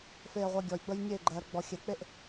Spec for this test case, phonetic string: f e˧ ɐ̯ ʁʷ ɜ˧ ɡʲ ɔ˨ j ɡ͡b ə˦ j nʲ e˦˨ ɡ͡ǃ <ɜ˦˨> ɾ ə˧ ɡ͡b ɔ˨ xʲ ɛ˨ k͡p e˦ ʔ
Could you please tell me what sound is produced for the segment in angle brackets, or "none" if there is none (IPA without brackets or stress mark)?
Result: ɜ˨